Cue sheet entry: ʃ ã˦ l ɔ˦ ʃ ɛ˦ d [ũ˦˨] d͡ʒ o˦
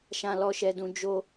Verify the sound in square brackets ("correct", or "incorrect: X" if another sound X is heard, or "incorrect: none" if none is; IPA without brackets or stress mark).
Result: incorrect: ũ˦